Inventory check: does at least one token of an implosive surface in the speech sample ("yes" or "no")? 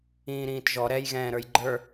no